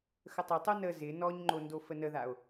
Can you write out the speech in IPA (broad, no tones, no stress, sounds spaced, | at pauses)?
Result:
x ə tˤ ɪ tˤ o n ə z ɪ n ɔ ɲ ŋ͡ǃ o n d o f ə n ə ð a o̯